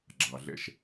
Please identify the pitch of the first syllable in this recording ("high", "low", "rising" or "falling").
low